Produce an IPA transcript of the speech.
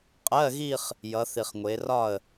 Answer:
qʼ ɜ˧˥˧ ɣ i˥˧ χ | j ʌ˩˧ θ i˩ χ ŋʷ e˩˧ r ɒ˥˩ ə̯

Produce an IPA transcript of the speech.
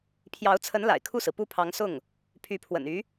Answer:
pʰ j ɑ˧˥ ʊ̯ t͡sʰ ə˧˥ n l a̰˨˩ ɪ̯ kʰ u˥˩ s ɹ̩˩ p u˥˩ pʰ ɑ˧˥ ŋ s ʊ˥˩ ŋ | pʰ y˧˥ pʰ w ə̰˨˩ n y˧˥

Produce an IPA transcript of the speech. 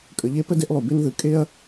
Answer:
kʼ ə˨ ʎ e˦ p ə˥ d e˦ ʔ lˠ u˩ b e˦ n ð ɯ˩ kʼ e˥ ɐ̯

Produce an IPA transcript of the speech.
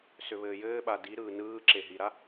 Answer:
s ʏ β ɘː j ɘː ɓ a d i ɾ ɯː n ɯː ǁ e ɦ i ɾ a

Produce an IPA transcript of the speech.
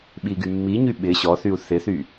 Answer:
ɓ i ɡ y mː i ɲ y ɓ ɪ ɕ ɔ θ y u̯ θ ɪ θ y

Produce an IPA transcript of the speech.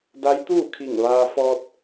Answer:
d a˧˥ j t̪ uː˥˨ kʰ i˧˩ ŋ ʋ aː˧ f ɔː˧ t̚

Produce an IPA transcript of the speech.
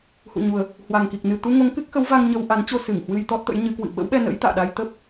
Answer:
h ṵ˧˨ ɲ u˨˩ ə̯ | h w a˨˩ ŋ k i˨˩ k̚ n ɨ˨˩ t̪ u˧ ŋ o˨˦ ŋ k ɨ˦˥ k̚ x ə˨˦ w v a˧ ŋ ɲ ə˧ w ʔ a˨˦ n t͡ɕ o˧ s ɨ˧˩ ŋ h w ɨ˧ j t̪ ɔ˦˥ t̚ t̪ ə̰˧˥ j ɲ ɨ˨˦ k w ɨ̰˧˨ ɓ ə̰˧˥ w ɓ ɛ˧ n ə̰˧˥ j t̪ a̰ː˧˨ ɗ a˧ j t̪ ə˦˥ p̚

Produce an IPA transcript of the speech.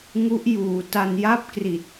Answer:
ŋ u˦˥ ʔ j uː˩˦ t a˧ n j a˥˩ p̚ k r i˨˩ t̚

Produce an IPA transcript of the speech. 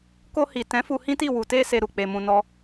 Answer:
k o˧ h i˨ t ɛ̃˨˦ f u˧ h ĩ˦ t i˦˨ w u˨ t e˧ s e˧ ɾ u˨ k͡p e˧ m ũ˧ n ɔ˦

